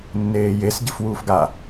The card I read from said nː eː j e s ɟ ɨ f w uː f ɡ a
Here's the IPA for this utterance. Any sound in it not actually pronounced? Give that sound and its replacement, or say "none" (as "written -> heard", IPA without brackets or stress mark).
none